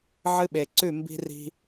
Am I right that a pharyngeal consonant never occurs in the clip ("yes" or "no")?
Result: no